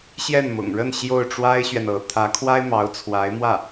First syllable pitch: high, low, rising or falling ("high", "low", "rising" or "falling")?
falling